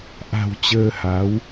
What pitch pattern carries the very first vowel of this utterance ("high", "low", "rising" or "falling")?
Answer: low